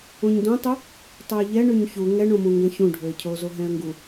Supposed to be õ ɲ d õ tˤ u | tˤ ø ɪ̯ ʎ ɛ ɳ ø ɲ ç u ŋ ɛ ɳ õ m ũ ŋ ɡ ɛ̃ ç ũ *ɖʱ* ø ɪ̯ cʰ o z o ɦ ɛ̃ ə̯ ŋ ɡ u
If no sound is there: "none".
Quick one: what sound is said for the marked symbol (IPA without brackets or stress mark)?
ɖʱ